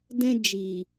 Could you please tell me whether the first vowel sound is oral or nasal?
nasal